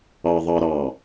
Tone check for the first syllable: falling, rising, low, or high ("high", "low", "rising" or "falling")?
low